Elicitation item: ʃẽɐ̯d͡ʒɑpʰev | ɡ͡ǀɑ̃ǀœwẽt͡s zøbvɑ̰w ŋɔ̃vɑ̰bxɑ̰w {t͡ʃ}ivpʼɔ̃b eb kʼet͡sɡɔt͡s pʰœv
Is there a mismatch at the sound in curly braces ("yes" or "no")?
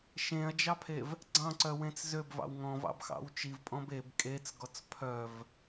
no